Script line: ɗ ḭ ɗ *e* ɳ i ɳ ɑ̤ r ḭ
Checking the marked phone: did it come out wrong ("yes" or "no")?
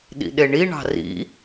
no